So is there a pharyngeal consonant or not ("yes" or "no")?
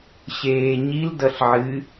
yes